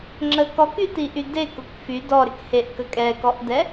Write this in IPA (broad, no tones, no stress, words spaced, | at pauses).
ŋ͡ǁəkɔky tiʔyde kʊkfy dɔɾɪkheʔ kəkʼɛkɔʔdɛ